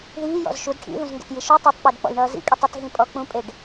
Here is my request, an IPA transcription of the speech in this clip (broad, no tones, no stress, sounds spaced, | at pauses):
ð iː j ɔ̰ z ʃ u d ʈʰ ḭ ð ũ z ŋ ɡ ə̰ t j i ʃ u tˤ ʌ tˤ k͡p e d k͡p ɔ̰ j ɳ ʌː z ḭ kʼ i tˤ ə t ɦ ĩ pʼ ɔ k͡p ũ pʼ e ɖ